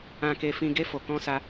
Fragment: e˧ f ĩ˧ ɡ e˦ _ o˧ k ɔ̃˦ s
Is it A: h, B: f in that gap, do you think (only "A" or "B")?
B